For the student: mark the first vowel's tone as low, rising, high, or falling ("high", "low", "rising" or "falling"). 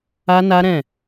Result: high